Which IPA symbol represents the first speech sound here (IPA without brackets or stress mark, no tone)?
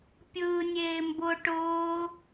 pʲ